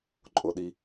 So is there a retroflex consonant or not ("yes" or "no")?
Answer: no